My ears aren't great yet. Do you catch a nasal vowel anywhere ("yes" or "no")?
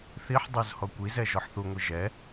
no